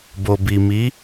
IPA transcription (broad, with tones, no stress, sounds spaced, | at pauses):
b o˨ b i˨ m i˨˦